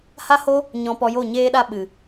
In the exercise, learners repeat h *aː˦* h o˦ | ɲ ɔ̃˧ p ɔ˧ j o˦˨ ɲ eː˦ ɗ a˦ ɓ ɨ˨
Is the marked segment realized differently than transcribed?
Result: yes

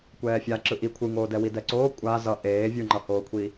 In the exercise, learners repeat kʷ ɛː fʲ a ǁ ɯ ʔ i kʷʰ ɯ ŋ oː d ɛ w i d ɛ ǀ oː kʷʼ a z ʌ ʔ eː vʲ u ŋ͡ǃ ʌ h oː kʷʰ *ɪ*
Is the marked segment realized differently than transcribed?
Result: yes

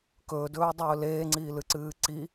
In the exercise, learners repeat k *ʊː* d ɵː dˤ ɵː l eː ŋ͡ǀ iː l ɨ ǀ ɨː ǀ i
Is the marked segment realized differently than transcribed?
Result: yes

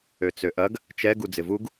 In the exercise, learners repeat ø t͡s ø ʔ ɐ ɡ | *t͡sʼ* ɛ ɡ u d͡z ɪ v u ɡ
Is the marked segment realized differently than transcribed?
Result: yes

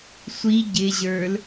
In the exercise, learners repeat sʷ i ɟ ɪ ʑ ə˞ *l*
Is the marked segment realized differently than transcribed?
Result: no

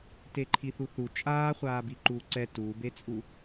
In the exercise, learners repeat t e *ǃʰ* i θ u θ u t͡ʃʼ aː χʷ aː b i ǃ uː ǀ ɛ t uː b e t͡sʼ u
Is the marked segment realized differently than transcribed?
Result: no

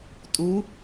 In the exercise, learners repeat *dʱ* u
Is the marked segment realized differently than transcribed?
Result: yes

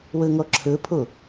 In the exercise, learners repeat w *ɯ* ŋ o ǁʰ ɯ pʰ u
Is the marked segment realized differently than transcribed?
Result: no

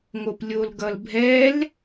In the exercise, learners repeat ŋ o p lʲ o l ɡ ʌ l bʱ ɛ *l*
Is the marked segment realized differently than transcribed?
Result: no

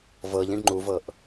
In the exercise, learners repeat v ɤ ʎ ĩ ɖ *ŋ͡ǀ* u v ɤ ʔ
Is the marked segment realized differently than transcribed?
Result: yes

